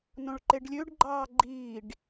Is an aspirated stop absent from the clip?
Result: yes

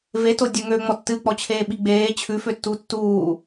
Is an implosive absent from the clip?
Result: no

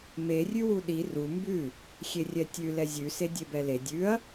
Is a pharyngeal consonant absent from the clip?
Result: yes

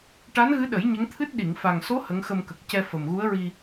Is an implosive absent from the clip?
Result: no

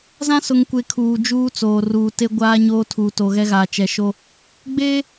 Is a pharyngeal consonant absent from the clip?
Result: yes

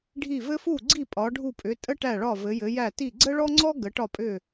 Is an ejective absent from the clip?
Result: no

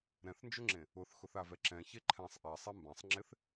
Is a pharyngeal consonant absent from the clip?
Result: yes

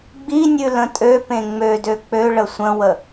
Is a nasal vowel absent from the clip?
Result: no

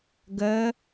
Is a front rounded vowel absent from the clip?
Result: yes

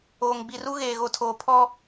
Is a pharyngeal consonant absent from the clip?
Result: yes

